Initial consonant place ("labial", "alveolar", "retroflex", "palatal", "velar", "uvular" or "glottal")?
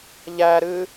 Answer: palatal